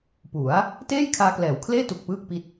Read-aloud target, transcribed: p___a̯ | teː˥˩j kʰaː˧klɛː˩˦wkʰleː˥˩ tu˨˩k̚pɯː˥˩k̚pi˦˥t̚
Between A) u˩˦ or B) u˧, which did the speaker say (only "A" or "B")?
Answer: A